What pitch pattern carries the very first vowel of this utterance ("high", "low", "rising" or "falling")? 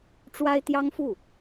high